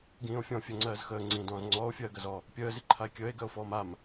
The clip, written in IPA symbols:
ɡ ĩː o̯ fʲ ɔ̃ fʲ ɜ ŋ͡ǀ ɜː z x əː ŋ͡ǀ ĩː d ɔ̃ː z ŋ͡ǀ ɔː o̯ fʲ ɜː ɡ ɜ z ɔ | pʲ əː z i ǃʰ a e̯ kʲ əː e̯ ɡ ɜ o̯ f ɔː m a m

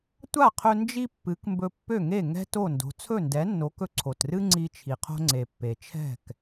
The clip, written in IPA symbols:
tʷ a˥˩ qʰ ɵ˧ n d͡ʒ i˥ pː ɨ˩˥ k m b ɵ˧ pː ø˥˩ ŋ e˥˩ ŋ ɛ̤˥ t o˥˩ n d o̤˩˥ t͡sʰ ɵ˥˩ n d ɛ˩˥ nː o˩˥ k ɵ˧ ǀʰ o˩ t r ɨ˥ ŋ͡ǀ i˧ t͡ʃʰ i˩ qʰ o̤˧ ŋ͡ǀ e˩ pː e˩ t͡ʃʰ ɛ̤˥˩ k

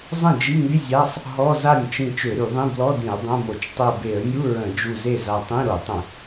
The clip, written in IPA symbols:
zˤ ə̃˥˩ d͡ʒ i˧˥˧ ŋ y˧˥˧ zʲ a˧˥˧ sˤ | ɦ ɔ˧˥˧ z a˥˩ nʲ t͡ʃ ĩ˧˩ t͡ʃ ø˧˩˧ ɾ y˧˩˧ ðˤ ĩ˧˥˧ b l ɔ˧˥˧ d ĩ˧˩˧ ə̯ dˤ õ˧˥˧ m o˧˩˧ t͡ʃ tˤ o˧˩ b e˧˩˧ ə̯ nʲ u˧˥˧ ɹ ə̃˧˩˧ d͡ʒ u˧˩ z e˥˩ z a˧ tˤ ĩ˧˥˧ ɾ o˧˩˧ tˤ ə̃˧˩˧

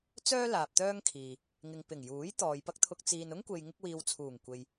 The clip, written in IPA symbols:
t͡s œː˥ l aː˨ p̚ t̪ œː˥ ŋ kʰ iː˨ | ŋ ɪ˨ ŋ p ɪ˨˩ ŋ j uː˨˥ j t̪ ɔː˨ j p ɐ˥ k̚ t̪ʰ ʊ˧ k̚ t͡s iː˨ n ʊ˥ ŋ kʷ e˨ j ŋ ɪ˥ k̚ w iː˧ w t͡sʰ uː˨˩ ŋ kʷ e˨ j

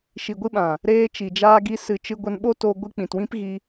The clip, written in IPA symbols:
ʃ i˨ ɡʷ ɨ˧ ɓ ã˨ | ɾ eː˧ t͡ʃ i˨ d͡ʒ aː˧ ɡ i˧ s ɨ˨ t͡ʃ ɨ˧ ɡʷ ə˧ n ɓ o˦ t o˧ ɡʷ ɨ˧ k͡p ĩ˨ t w ĩ˦ p ɣ i˧

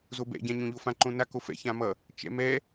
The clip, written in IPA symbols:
z o b ɛ̰ ɟ ã ɲ õ ʎ o f ã ǃ õ n a k o f ɛ̰ ç ã m ʌ | t͡ʃ ɛ̰ m ɛ

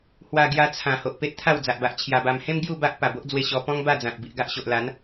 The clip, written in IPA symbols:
h w a˧ ɡ j a˧ t͡sʰ ã˨˩ h o˨ ʔ p e˦ t̚ t̪ʰ a˥˧ w d͡z a˨ ʔ b a˨ ʔ t͡ɕʰ j a˧ b a˧ m h ẽ˦ m ɡ j u˥˧ b a˦ ʔ p a˨˩ b o˦ ʔ d͡z w e˧ ɕ ɔ˧ p ɔ̃˦ ŋ b a˥˧ d͡z ã˨ t̚ b i˨ ʔ ɡ a˦ ʔ ɕ o˨ ʔ l a˨˦ n

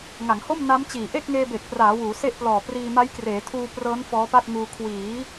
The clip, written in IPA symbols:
ŋ a˩˦ ŋ h o˥˩ m n a˦˥ m t͡ɕ iː˨˩ ʔ e˥˩ k̚ ŋ eː˧ b e˨˩ k̚ p r aː˩˦ w uː˩˦ s e˥˩ ʔ p l ɔː˨˩ p r iː˧ m a˦˥ j k r eː˩˦ tʰ uː˧ p r ɤː˦˥ n f ɔː˦˥ p a˥˩ t̚ ŋ uː˧ kʰ w iː˩˦

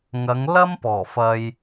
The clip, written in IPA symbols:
ŋ ɐ˨˧ ŋ l ɐ˥ m p ɔː˨˩ f ɐ˧ j

